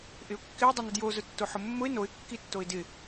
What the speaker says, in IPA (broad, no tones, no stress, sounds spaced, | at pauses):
ʔ ɪ ʊ̯ kː ɪ ʊ̯ dˤ ʊ n ʊ d j o z ʊ tː o ħ ʊ mː ʊ ɪ̯ n o ɪ̯ kː i tː o ɪ̯ d ɪ